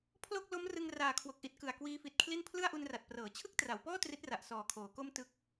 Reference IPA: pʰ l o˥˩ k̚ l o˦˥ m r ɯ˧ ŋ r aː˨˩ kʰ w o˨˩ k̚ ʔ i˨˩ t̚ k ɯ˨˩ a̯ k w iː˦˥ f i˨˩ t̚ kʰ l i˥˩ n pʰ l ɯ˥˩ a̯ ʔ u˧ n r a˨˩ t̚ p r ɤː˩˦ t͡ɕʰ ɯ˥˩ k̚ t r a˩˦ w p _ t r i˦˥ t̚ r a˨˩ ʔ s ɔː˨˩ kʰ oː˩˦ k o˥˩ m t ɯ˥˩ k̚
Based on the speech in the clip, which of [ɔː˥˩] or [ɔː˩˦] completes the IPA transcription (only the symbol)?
ɔː˥˩